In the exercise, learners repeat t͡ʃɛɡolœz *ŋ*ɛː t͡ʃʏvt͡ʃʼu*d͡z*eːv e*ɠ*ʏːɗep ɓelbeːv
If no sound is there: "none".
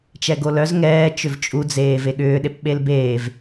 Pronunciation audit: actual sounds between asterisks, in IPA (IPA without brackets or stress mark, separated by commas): ŋ, d͡z, ɠ